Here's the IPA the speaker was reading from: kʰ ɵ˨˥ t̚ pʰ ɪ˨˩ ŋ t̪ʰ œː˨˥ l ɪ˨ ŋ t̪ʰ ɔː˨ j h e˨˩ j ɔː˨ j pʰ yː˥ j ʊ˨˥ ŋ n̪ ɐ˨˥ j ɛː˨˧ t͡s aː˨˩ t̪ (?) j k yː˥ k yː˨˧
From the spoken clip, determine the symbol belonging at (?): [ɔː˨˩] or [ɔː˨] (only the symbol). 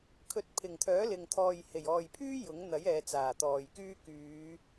ɔː˨